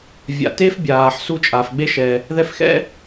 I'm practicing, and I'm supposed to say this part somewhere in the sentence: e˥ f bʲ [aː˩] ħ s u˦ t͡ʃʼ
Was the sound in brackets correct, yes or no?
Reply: yes